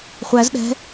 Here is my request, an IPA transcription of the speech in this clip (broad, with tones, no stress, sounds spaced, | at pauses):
χʷ æ˧˥ z ɗ ɛ̤˧˥